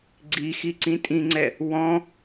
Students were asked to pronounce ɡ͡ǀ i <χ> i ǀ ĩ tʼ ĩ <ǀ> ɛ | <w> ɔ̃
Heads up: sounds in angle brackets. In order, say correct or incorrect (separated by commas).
incorrect, incorrect, correct